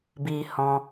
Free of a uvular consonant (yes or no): yes